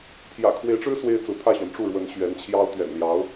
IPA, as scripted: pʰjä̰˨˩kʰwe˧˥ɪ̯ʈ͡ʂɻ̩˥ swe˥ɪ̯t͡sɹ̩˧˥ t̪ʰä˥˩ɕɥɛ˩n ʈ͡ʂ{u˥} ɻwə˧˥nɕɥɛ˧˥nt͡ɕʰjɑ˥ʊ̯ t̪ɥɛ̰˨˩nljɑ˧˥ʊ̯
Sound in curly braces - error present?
yes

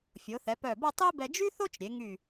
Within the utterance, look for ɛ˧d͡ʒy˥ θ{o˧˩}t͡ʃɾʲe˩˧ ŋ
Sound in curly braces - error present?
yes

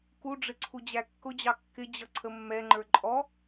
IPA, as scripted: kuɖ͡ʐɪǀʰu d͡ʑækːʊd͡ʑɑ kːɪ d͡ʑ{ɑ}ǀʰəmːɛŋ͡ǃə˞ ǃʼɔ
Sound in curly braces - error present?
yes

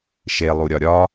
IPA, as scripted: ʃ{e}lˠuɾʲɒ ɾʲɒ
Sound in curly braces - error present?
no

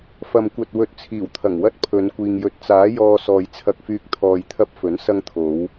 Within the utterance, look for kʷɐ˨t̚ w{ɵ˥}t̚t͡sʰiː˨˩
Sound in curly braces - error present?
yes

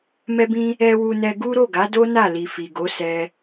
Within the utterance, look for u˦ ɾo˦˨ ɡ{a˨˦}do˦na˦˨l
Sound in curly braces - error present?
no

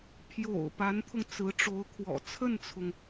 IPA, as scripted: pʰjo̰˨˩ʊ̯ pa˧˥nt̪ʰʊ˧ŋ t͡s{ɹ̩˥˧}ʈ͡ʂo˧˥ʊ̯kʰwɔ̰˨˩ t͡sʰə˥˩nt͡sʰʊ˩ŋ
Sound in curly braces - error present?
yes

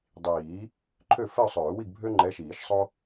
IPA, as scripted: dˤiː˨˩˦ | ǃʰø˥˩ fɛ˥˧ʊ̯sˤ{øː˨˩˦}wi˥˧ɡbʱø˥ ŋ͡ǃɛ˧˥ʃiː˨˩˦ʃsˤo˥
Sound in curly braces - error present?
no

